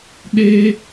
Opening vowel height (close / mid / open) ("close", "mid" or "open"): mid